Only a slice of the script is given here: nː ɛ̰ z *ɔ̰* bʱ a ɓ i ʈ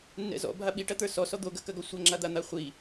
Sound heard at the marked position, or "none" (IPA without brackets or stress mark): ɔ̰